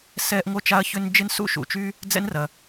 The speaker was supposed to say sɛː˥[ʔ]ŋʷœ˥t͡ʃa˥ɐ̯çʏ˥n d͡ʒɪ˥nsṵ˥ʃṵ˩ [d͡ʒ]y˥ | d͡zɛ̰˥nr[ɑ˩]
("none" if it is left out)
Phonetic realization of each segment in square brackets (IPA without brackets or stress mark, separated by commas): ʔ, t͡ʃ, ɐ˩